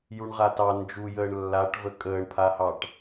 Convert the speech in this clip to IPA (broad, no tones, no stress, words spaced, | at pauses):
juɳʁatɑ nd͡ʒujəːɳ lːaʈvə kʼəːɳpʰahɑʈ